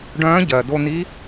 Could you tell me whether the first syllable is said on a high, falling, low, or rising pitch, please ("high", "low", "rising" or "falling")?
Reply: rising